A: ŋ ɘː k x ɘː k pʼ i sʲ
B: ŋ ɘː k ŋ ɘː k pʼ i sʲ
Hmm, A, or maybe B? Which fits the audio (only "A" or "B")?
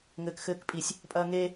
A